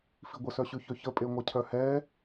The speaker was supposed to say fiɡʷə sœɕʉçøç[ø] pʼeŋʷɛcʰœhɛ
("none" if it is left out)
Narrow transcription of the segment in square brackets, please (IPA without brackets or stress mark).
ə